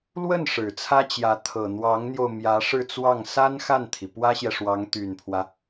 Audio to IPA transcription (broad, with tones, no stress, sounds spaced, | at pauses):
l w ə˥˩ n ʂ ɻ̩˨˩ t͡sʰ ä˥ t͡ɕ j ä˧˥ t̪ʰ ɤ˨˩ n̪ w ɑ˧˥ ŋ n̪ j o˧ ʊ̯ m j ä˧˥ ʂ ɻ̩˥˧ t͡s w ɑ˥˩ ŋ s a˥ n x a˥˩ n t̪ʰ i˩ p w ä˥ ɕ j ɛ˨ ʂ w ɑ˧˥ ŋ t̪ y˨˩ n pʰ w ä˦